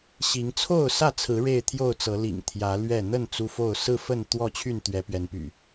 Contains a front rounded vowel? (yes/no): yes